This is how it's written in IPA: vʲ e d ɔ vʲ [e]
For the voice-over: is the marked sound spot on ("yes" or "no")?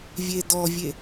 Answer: yes